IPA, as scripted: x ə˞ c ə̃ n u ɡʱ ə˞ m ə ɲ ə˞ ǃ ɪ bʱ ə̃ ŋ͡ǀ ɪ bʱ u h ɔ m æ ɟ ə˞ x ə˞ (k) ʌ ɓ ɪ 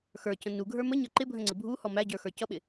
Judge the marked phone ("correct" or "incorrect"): incorrect